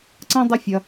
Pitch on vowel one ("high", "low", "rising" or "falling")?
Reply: high